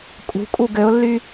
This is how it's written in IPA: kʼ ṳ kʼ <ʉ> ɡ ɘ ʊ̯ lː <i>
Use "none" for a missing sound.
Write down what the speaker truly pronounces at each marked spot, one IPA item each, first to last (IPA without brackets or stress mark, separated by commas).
u, y